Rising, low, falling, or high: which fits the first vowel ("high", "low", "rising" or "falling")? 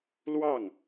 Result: falling